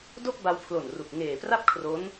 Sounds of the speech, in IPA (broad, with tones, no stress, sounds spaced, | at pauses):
d o˥˩ k̚ b a˧ w pʰ l o˨˩ n r u˨˩ k̚ ŋ eː˨˩ p r a˥˩ p̚ kʰ r o˦˥ n